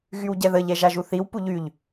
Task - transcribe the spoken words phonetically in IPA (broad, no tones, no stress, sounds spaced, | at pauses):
ɣ y w ɟ ɛ ð ə ʎ ɛ ʒ a ʒ u θ i w p u ʎ y ʎ